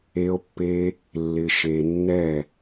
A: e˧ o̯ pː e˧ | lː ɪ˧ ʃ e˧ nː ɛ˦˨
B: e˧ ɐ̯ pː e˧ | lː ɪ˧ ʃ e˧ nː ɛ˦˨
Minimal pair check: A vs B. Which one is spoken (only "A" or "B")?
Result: A